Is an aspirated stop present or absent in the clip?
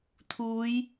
present